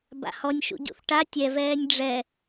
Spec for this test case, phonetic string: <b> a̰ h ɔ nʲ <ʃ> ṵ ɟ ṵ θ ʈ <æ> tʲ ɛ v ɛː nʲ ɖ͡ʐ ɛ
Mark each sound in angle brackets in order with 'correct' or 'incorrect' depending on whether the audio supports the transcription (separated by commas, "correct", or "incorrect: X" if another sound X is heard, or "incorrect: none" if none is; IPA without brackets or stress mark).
correct, correct, incorrect: a